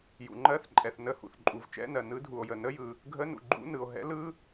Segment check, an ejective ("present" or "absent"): present